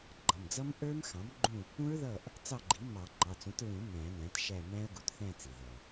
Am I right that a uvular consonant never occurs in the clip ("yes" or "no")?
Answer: yes